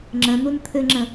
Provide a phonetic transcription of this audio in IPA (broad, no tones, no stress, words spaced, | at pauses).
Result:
ŋ͡ǁə̃n̪un t̪ʰɘŋ͡ǁə̃